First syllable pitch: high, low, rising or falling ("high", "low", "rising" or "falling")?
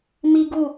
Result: high